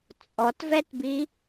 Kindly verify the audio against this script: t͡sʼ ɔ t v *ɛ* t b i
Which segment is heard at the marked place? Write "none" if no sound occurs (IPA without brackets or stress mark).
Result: ɛ